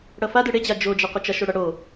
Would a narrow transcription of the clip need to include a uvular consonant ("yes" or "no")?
yes